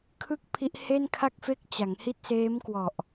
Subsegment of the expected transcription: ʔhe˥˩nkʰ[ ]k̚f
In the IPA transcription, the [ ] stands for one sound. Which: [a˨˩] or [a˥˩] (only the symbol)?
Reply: a˥˩